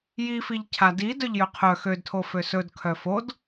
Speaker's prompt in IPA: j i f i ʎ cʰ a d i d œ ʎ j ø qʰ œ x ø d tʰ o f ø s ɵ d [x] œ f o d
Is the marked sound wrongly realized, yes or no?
yes